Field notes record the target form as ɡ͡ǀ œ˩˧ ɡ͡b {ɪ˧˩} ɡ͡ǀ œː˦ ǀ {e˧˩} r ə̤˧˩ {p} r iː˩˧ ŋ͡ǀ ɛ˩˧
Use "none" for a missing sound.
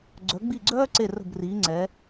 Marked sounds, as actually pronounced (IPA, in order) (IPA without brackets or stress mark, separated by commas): i˧˩, e˧˩, b